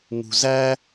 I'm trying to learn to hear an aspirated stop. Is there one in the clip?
no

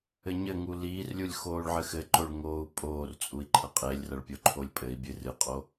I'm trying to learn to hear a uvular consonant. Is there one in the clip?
yes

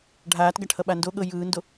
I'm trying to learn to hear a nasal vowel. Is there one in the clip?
no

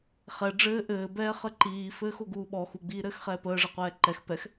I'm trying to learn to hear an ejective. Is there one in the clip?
no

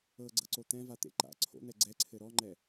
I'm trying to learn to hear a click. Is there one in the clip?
yes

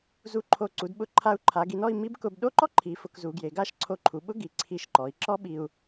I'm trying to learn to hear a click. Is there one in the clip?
yes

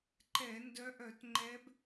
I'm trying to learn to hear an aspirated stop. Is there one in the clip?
no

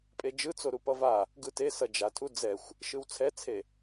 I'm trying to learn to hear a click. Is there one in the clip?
no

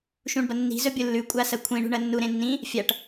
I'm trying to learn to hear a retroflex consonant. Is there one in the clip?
yes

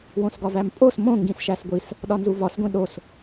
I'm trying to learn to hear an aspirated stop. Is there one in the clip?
no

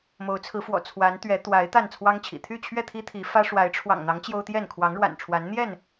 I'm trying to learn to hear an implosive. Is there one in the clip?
no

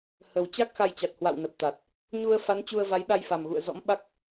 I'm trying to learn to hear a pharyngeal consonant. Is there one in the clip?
no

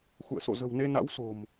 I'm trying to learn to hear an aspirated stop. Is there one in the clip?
no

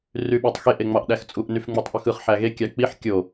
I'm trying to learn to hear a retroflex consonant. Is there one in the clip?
no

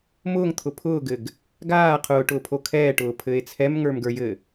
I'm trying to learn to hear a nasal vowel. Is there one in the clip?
no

